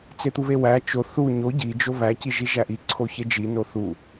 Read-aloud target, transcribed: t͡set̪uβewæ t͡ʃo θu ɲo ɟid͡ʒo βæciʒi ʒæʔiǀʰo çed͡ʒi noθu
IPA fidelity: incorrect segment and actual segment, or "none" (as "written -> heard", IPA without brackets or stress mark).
none